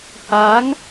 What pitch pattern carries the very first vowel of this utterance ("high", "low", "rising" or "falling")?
rising